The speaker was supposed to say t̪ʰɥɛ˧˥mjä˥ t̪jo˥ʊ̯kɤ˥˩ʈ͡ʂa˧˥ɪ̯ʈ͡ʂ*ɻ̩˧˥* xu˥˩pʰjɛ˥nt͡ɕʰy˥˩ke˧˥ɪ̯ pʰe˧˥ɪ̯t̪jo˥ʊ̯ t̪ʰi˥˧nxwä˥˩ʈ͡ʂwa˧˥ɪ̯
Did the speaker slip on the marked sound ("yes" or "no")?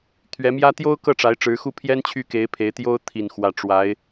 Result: no